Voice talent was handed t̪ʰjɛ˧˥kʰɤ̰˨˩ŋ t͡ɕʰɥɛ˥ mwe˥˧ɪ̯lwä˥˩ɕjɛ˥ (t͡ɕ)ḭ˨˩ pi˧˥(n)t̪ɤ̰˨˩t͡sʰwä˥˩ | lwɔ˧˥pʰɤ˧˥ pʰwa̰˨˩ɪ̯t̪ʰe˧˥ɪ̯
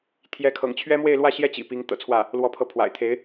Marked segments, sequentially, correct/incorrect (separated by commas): correct, incorrect